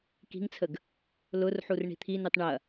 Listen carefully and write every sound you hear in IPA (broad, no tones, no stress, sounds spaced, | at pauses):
k i̤ ŋ t͡sʰ ə ɡ | l ʊ r ħ u r ɳ i̤ t̪ʰ i n y tˤ ɳ ɐ